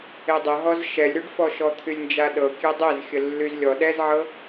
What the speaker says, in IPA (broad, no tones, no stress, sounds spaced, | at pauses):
e dˤ ə ɦ ɔ z ʃ ɛ lʲ ɾ y ɖ f ɔ ʃ ɔ t̪ʰ y lʲ n d͡ʒ a ɗ ɤ kʲ e dˤ e z xʲ ə lː y z lʲ ɔ ɗ ɛ z ʕ ɤ